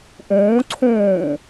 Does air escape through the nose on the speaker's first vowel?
yes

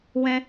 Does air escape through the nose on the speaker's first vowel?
yes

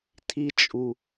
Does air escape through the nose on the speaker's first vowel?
no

